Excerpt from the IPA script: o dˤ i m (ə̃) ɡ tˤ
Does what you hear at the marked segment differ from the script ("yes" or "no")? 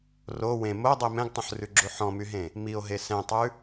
yes